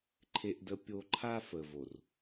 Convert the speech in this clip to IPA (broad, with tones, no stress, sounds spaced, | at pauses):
ǃʰ e˦ ʔ d ə˦ pʲ o˦ ǃʰ a˦ f ə˨ v o˨ r